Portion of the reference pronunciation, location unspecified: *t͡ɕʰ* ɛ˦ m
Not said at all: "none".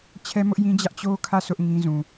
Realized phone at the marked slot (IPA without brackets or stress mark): t͡ɕʰ